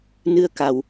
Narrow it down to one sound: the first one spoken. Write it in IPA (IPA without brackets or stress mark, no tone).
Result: n